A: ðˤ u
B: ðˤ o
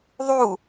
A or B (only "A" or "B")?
A